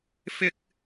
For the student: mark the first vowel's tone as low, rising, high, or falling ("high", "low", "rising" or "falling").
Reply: high